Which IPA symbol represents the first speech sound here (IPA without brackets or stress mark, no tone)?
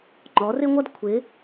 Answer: ŋ͡ǃ